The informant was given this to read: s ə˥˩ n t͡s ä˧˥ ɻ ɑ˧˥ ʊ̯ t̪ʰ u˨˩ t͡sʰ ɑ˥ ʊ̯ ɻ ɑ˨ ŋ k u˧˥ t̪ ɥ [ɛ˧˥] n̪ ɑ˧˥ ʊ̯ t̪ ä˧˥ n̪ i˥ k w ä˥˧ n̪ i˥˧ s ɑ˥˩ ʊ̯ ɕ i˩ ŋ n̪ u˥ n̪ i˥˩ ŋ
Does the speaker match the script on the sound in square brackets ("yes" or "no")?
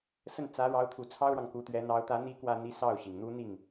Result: yes